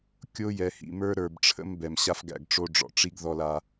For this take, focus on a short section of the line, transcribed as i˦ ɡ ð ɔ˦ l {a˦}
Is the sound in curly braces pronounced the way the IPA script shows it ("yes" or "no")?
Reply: yes